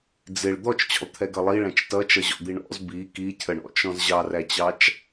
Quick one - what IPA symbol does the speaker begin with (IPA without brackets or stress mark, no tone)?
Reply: d͡z